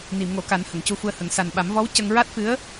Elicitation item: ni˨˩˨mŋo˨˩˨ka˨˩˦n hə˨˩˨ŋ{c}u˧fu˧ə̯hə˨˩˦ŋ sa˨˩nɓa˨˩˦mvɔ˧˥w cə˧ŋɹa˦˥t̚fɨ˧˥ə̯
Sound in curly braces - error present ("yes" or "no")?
no